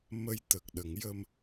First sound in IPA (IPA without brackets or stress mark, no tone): m